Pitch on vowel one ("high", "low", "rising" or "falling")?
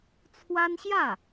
high